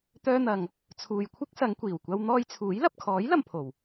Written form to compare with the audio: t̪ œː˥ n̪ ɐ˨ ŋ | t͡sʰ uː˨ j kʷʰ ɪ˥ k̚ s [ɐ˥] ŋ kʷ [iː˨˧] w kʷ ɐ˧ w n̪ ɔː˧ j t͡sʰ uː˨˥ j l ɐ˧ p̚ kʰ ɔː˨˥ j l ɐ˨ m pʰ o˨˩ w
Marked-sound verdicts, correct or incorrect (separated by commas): incorrect, incorrect